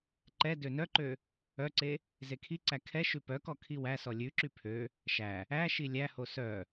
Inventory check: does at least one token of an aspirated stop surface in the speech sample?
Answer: yes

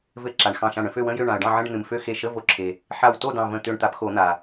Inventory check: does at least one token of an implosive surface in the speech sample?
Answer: no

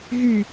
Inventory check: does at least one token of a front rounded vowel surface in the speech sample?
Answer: yes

